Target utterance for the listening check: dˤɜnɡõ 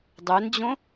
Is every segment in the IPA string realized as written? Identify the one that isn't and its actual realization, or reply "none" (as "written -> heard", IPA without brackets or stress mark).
ɡ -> d͡ʑ